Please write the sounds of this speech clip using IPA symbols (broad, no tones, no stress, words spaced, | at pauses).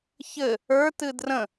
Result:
çɘ | ə˞ tɨdrə̃